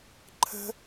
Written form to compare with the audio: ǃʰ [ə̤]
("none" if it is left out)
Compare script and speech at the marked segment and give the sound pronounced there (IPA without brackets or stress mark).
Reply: ə̤